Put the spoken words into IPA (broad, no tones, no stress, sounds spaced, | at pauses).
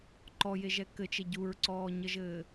ǃ ɔ j e ʒ ɛ k ɘ t͡ʃ e ɟ u ɹ ǀ ɔː ɲ ə ʒ ɘː